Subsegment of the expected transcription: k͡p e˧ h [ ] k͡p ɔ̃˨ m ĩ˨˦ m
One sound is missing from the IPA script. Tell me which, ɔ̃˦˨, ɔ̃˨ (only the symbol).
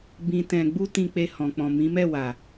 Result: ɔ̃˨